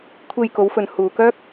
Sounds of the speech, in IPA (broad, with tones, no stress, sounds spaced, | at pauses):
kʷʰ e˧ j k o˨˧ w f ɵ˨ n h uː˨ k œː˥ k̚